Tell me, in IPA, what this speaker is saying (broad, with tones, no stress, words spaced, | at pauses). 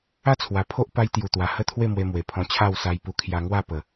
a˦t͡sʰwa˨˩pʰo˦ʔ pa˧jt̪ju˨˩t̪wa˨˩ hə˥˧t̪ʰwe˥˧mwe˧mwe˨˩ pʰɔ̃˧t͡ɕʰa˥˧w sa˧jpu˧kʰja˧ ŋwa˥˧pə˨˩